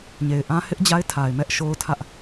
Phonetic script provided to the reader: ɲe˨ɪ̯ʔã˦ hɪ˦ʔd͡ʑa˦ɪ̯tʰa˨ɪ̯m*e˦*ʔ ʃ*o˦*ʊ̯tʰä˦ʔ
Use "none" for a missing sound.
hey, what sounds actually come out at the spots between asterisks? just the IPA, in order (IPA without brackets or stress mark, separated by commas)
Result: ɛ˦, o˦